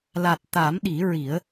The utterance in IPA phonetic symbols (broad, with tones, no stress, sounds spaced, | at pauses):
l a˨˩ t̚ t̪ a˨˩˦ m ɗ i˨˩˦ ɹ i˨˩˦ ə̯